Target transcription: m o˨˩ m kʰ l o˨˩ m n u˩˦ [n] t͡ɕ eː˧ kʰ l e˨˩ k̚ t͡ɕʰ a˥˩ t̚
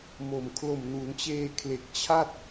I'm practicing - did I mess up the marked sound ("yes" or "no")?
no